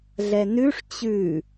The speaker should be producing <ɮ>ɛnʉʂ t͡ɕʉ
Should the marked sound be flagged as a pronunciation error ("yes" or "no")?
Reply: no